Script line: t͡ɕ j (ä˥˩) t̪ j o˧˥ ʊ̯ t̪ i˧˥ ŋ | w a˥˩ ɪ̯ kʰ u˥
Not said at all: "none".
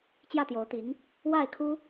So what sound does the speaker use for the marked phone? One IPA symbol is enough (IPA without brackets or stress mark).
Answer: ä˥˩